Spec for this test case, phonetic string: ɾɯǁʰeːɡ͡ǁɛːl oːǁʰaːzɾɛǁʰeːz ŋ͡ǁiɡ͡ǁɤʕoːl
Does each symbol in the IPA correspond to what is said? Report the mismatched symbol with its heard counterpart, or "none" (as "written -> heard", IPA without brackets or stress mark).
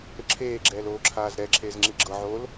none